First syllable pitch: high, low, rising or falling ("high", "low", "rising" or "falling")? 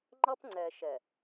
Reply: high